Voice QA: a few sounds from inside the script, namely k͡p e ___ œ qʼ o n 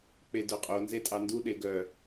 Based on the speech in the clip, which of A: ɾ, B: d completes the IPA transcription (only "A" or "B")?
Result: B